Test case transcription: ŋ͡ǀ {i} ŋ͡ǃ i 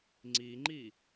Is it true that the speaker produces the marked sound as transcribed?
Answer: yes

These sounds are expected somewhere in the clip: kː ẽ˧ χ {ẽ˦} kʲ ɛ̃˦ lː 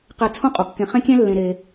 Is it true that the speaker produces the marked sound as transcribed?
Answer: yes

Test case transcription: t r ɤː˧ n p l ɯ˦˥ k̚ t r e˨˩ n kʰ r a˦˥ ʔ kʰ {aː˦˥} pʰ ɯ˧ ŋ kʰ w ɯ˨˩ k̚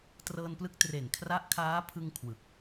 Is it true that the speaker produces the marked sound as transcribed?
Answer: yes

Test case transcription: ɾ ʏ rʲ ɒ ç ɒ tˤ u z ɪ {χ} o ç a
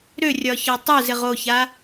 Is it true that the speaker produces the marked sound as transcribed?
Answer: no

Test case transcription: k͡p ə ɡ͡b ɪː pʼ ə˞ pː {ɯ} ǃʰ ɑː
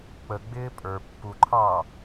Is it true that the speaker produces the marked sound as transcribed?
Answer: no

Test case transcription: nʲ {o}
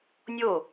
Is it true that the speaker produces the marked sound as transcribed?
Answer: yes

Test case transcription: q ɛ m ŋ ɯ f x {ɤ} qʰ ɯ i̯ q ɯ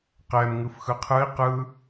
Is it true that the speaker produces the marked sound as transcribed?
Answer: no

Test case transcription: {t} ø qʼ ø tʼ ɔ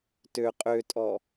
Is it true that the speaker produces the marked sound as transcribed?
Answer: yes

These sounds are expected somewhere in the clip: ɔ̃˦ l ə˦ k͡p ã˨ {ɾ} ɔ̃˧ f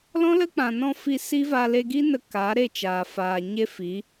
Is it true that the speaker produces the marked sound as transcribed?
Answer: no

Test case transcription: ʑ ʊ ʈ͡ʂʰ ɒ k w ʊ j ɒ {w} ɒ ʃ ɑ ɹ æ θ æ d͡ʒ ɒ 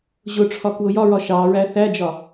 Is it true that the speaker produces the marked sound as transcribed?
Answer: no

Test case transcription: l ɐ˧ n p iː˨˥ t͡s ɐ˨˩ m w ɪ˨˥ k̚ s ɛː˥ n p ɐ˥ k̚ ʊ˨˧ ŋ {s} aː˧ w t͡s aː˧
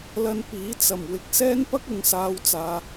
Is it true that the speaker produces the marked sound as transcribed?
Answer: yes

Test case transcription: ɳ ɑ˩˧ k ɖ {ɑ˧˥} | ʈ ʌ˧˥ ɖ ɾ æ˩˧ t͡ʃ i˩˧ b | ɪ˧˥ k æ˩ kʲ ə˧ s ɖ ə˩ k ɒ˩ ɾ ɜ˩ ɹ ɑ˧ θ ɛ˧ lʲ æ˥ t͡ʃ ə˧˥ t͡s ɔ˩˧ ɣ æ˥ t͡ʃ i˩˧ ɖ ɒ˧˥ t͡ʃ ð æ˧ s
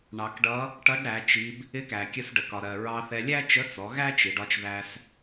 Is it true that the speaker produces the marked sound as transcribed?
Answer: no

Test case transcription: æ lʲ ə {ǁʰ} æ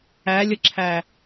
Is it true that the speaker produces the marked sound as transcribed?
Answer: yes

